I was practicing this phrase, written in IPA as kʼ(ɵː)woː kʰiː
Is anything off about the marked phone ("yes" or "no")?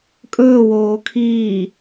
no